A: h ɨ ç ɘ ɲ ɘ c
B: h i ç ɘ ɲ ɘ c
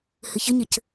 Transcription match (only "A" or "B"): A